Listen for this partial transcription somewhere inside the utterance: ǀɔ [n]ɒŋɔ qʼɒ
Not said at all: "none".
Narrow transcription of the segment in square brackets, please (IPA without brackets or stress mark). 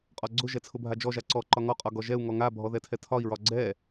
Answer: ǃ